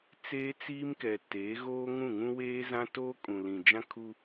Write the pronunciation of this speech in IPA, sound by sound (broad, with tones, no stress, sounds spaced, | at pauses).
t͡s eː˦ t͡s iː˦ m k ɛ˨ t eː˨˦ ɣ oː˦ ŋ ũ˦˨ ŋ ũ˦ w eː˦ z ã˦ t oː˦ kʼ ũ˨ l ĩ˨ d͡ʒ ã˦ kʰ u˦